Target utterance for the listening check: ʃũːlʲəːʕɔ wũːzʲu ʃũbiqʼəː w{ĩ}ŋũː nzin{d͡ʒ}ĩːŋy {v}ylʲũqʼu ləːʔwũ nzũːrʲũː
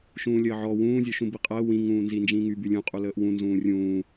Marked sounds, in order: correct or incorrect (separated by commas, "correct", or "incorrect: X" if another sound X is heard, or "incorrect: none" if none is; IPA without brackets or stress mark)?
correct, correct, incorrect: b